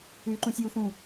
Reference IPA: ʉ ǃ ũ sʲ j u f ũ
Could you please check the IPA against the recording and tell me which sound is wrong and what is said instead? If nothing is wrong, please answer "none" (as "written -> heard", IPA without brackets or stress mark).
none